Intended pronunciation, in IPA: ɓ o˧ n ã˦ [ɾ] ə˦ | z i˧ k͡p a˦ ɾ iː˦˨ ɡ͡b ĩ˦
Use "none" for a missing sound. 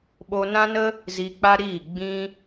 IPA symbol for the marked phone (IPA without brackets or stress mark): n